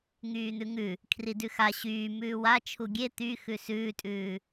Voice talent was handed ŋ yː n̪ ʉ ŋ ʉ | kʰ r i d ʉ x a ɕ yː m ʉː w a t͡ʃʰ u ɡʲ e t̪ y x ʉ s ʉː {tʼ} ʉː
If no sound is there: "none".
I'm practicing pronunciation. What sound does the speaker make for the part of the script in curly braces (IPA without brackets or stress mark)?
tʼ